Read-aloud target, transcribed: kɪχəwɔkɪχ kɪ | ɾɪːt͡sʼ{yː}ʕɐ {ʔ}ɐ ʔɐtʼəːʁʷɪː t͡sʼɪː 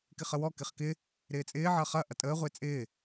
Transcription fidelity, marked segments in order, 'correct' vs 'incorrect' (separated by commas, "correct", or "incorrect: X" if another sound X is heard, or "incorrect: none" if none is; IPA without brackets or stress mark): incorrect: ɪː, incorrect: χ